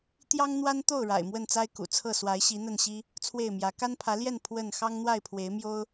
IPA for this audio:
t̪jɑ˦ŋ n̪wa˦nt̪o˥˨ʊ̯ ɻa̰˨˩ɪ̯mwə˥˨nt͡sa˦ɪ̯ kṵ˨˩t͡sʰɤ˥˨ swa˨˦ɪ̯ ɕi˨˦n̪ə˥˨nɕi˦ | t͡sʰwe˥˨ɪ̯mjä˨˦ ka˦npʰä˨˦ljɛ˥˨n pʰwə˥˨n xɑ˦ŋn̪wa˥˨ɪ̯pʰwe˨˦ɪ̯mjo˦ʊ̯

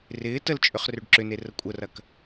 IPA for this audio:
rɪː təlt͡ʃʼʏχ røɖǁʏne rəkʷʼərɐk

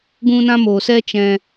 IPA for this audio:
ɡũ˧nã˧moː˨sɛ˧ t͡ʃɛ̃˧

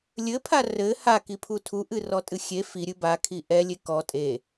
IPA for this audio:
lʲɘpʰa rɘ hakipʰu tʰuʔɨrɔtʼɨ xʲe fiɾʲɨ bakʰi ʔɛlʲe kɔ tʼe

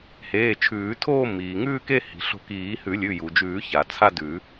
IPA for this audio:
heː˩˧˩t͡ʃʰʉː˨˩˦tʰoː˥˧ miː˩ŋʉː˥˧ke˥˧ hi̤˩ɬo̤˧˩kiː˨˩˦ hʉ˨˩˦lʲʉ˩˧˩ju˩d͡ʒʉː˨˩˦ ça˩t͡sʰa˥˧dʉ˨˩˦

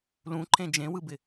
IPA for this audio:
lũǃʰẽ d͡ʒẽwɯbɪ

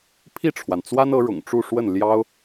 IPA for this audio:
pʰi˥˩ʈ͡ʂʰwa˩nt͡swa˥n ɤ˧˥ɻʊ̰˨˩ŋʈ͡ʂu˥˧ʂwə˥˩n ljɑ˥ʊ̯

